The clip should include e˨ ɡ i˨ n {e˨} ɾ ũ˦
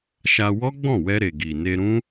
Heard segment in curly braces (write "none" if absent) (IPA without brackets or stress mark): e˧